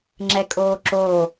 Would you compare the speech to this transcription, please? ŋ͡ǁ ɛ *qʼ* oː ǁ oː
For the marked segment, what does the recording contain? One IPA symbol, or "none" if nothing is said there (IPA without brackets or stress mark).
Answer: kʼ